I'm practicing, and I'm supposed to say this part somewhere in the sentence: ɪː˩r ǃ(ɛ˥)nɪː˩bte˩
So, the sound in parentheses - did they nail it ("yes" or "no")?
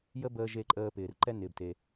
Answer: yes